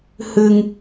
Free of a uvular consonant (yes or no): yes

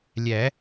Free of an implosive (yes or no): yes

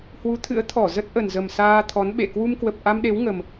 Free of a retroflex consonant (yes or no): yes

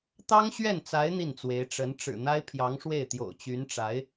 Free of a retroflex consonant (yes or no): no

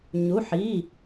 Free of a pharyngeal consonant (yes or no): no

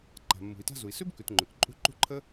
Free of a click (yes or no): no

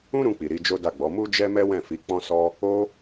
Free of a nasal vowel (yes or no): no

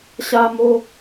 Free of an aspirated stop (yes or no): yes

